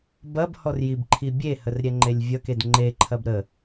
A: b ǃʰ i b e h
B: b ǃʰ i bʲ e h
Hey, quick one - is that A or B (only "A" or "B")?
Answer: B